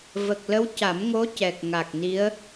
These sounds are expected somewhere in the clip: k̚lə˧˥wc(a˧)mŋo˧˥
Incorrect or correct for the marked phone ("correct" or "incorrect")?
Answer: incorrect